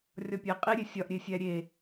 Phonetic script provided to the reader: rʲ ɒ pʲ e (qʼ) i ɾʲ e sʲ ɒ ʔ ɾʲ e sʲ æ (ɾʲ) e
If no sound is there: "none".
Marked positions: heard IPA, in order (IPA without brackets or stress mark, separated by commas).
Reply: qʼ, ɾʲ